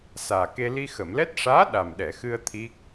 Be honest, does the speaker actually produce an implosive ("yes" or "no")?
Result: yes